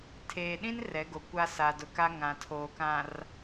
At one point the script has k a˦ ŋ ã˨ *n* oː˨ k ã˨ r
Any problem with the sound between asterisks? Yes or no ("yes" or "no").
yes